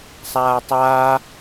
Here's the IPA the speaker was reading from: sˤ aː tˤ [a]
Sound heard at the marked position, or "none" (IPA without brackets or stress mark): aː